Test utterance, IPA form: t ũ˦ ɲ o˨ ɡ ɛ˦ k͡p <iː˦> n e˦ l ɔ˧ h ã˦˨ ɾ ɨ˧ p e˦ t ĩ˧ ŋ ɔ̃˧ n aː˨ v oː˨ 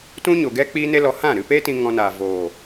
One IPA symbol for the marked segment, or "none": iː˦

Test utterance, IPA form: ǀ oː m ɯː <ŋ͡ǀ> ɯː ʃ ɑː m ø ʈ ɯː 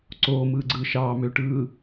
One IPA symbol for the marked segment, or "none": ɡ͡ǀ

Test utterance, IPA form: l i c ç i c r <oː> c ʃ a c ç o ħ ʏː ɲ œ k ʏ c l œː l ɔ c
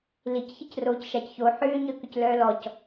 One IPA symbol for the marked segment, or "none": oː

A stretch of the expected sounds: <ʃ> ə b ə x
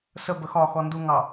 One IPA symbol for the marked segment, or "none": s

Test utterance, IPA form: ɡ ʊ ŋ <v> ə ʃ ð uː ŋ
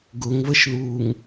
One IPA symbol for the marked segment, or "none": v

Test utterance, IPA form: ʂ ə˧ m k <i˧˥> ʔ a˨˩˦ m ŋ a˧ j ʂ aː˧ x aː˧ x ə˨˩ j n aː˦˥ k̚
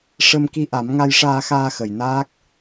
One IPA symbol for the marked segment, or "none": i˧˥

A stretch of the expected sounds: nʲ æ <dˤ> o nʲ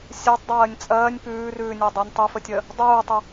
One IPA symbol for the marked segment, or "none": dˤ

